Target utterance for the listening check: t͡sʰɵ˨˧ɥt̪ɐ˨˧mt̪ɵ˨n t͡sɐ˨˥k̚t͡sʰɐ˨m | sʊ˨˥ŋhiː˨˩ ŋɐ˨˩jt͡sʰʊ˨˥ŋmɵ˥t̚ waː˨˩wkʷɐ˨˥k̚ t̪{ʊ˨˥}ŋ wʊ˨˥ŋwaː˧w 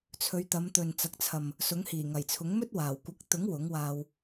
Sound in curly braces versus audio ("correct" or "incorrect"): correct